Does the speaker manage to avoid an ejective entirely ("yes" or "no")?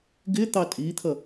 no